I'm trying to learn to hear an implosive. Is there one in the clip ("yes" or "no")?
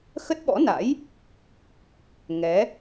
yes